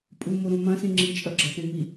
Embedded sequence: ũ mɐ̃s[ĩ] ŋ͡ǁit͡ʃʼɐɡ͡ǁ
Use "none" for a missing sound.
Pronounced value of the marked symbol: ĩ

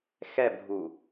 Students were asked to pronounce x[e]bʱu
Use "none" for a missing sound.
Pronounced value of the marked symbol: ɛ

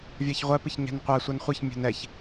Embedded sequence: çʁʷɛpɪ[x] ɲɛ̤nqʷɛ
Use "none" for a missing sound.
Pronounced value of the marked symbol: ç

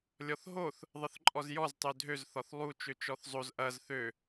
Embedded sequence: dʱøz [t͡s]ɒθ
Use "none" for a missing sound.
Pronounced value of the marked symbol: θ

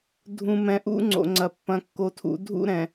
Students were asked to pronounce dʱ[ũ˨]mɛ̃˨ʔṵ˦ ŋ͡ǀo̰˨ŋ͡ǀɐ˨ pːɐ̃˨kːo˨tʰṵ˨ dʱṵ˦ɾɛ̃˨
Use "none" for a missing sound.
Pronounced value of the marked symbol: ũ˨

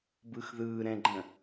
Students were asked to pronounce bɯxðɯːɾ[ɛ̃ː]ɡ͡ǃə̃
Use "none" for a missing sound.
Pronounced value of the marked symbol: ɛ̃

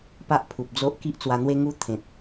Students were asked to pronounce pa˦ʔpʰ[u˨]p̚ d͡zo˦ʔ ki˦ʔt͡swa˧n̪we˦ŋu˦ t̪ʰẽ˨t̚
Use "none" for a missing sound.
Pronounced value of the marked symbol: u˨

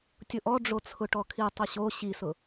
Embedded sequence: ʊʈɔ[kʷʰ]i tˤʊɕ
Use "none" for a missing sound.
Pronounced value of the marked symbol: kʰ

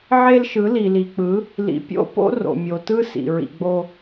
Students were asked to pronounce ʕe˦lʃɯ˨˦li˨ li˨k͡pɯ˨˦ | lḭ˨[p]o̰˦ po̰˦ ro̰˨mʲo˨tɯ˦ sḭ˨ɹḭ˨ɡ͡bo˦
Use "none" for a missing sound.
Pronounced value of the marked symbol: pʲ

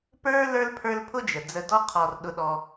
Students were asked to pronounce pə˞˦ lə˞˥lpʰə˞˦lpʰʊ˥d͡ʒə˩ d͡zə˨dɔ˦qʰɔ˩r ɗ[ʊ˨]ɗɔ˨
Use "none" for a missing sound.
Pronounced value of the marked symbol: ʊ˨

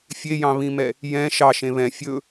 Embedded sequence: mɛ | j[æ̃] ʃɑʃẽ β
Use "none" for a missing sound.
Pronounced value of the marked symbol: ɛ̃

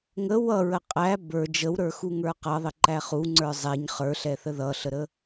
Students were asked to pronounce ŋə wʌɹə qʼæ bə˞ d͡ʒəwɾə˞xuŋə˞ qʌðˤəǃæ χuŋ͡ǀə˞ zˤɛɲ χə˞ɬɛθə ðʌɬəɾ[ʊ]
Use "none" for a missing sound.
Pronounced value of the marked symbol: ə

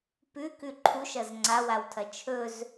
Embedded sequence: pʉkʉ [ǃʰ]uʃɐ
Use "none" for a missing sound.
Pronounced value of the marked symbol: ǃʰ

